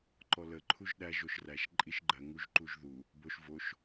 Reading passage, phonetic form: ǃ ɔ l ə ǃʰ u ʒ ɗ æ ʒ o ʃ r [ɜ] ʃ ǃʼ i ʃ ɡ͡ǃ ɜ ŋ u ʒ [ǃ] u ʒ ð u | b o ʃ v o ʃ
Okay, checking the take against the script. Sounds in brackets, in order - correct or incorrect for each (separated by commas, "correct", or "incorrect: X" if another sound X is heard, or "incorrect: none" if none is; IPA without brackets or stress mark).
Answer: incorrect: æ, correct